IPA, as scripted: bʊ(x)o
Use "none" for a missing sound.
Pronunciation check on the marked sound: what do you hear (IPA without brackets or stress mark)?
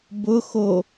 x